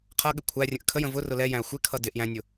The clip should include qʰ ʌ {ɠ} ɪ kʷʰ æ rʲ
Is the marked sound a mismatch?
no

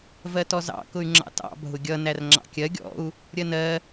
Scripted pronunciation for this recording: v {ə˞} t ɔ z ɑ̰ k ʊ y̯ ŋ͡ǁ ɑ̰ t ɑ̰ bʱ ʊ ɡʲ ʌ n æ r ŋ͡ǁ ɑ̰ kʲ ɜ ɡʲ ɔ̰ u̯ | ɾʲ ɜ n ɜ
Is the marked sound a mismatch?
yes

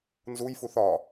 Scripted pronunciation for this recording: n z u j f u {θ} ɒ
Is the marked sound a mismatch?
no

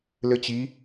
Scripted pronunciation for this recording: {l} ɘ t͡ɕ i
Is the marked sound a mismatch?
no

